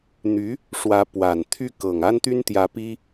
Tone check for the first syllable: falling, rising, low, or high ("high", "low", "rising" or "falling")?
rising